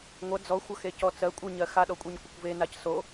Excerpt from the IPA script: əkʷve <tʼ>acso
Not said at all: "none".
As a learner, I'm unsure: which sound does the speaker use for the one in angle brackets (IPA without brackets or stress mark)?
n